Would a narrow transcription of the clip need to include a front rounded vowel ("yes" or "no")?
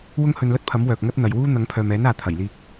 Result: yes